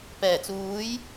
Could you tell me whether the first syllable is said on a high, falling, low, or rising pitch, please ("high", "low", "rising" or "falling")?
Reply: low